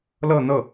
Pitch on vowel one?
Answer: falling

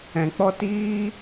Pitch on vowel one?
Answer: low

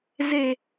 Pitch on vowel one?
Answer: low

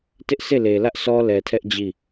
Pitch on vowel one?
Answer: high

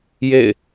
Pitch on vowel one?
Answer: falling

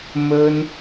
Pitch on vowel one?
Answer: high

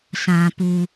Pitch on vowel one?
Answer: low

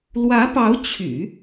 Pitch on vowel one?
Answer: rising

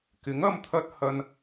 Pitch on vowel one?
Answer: rising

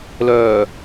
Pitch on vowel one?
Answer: low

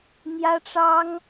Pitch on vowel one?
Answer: high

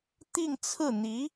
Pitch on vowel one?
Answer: falling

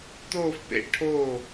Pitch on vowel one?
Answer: falling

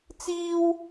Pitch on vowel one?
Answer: high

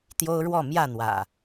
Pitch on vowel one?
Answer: high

